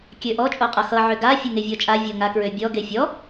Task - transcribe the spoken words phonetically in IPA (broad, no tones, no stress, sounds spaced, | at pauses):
kʲ ø ʔ ɔ t͡ʃʼ o qʼ ʌ x ʌ ʕ ø ɡ a fʲ o ŋ e vʲ ɔ t͡ʃʼ a vʲ o ŋ a k ɹ ø bʲ ɔ ɡ e fʲ ɔ